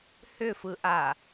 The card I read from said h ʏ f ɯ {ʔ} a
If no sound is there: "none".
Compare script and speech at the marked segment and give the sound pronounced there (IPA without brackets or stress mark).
ʔ